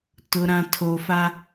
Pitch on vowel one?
low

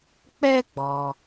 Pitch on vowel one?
high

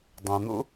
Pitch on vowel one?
low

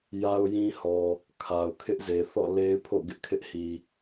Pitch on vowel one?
high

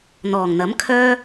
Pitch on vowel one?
low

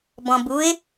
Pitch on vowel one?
low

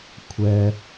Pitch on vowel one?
low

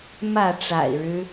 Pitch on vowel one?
falling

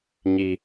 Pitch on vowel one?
high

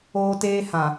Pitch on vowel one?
high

